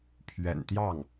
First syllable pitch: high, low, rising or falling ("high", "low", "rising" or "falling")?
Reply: low